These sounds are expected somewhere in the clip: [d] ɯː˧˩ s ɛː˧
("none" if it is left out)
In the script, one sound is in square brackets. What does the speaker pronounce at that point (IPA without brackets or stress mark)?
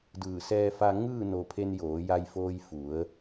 d